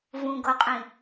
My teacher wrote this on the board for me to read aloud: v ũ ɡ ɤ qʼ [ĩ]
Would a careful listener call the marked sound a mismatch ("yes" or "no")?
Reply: no